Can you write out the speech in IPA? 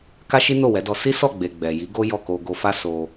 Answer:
k a˦ ʃ i˦ n o˦˨ w ɛ˨˦ d ɔ˧ s i˦ s ɔ˦˨ ɡ͡b e˨ ɡ͡b ɛ˨ j i˨˦ ɡ o˦ j ɔ˦˨ k o˧ ɡ o˧ f a˦ s o˧

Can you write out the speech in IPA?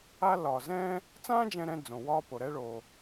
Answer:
a˥ l ɒː˩ z ɛ̃ː˥ | t͡s ãː˥ d͡ʒ ɛ̃˥ ɾ ɛ̃˥ d͡z õ˩ w ɒː˥ p o˩ ɾ ɛ˥ ɭ oː˩

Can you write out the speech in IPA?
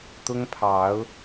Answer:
t̪ ʊ˦ ŋ pʰ ɑ˨˦ ʊ̯

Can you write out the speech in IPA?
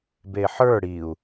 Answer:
b e ħ ə˞ ɽ i u̯

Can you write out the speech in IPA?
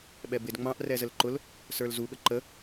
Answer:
ɓ ɛ b ɪ d ŋ͡m ɑ̃ ʔ r ɛ z ə l ǃ ʊ l | s ə˞ l z u ɠ ə ǃ ə

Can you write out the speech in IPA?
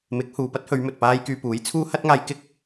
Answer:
m ɪ˨˥ k̚ h uː˨ p ɐ˥ t̚ h ɵ˨˧ ɥ m ɵ˨ t̚ p aː˥ j k yː˧ p uː˨˥ j t͡sʰ uː˥ h ɐ˥ t̚ ŋ aː˧ j k ɪ˥ k̚

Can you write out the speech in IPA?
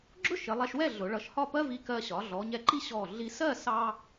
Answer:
ɡ͡ǁ ʊ˥ ʃ ɪ˩˧ lˠ ɛ˧ ʃ w ɛ˥˧ ɮ ʊ˩˧ ɭ ʌ˧ ʃ h ɒ˥˧ p ɜ˥ v i˧ k ɜ˧ ɕ ɒ˩˧ ɮ ɔ˩˧ ɲ ɛ˧ ǃ i˥ ɕ ɔ˧˩ ɮ i˧ s ɜ˥˧ s ɑ˥

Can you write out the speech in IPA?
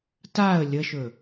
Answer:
t a ə̯ lʲ ə ʃ ɵ

